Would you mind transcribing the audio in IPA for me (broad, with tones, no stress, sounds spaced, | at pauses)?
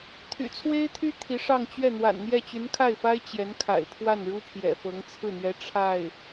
t̪ʰ y̰˨˩ t͡sʰ w e˥ ɪ̯ t̪ʰ y˥ t̪ʰ i˧˥ ʂ ɑ˥˧ ŋ t͡ɕ ɥ ɛ˥˩ n̪ w a̰˨˩ n n̪ j ɛ˥˩ t͡ɕ y˧˥ n kʰ a˥˩ ɪ̯ f a˥ ɪ̯ t͡ɕ j ɛ˧˥ n kʰ a̰˨˩ ɪ̯ pʰ w a˥˩ n ɻ u˥ pʰ j ɛ̰˨˩ f ɤ˧˥ ŋ t͡sʰ ɹ̩˥˩ n̪ ɥ ɛ˧˥ ʈ͡ʂʰ a˥˩ ɪ̯